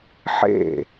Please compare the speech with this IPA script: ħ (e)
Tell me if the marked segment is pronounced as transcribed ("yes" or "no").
no